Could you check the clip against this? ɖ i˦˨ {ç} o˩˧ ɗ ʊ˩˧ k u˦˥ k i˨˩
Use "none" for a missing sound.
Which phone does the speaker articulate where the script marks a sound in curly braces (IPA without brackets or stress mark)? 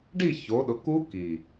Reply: ç